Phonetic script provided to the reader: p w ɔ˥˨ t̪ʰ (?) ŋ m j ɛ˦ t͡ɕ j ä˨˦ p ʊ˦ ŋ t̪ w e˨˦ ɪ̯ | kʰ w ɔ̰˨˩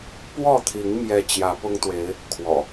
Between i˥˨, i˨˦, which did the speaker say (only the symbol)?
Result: i˨˦